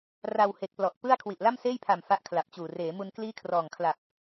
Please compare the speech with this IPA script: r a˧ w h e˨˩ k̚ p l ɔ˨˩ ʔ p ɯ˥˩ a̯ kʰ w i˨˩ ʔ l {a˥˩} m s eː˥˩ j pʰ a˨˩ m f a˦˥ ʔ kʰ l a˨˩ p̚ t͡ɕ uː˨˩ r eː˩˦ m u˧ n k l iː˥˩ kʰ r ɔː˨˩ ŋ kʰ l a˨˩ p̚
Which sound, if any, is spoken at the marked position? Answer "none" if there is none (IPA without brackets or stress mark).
a˥˩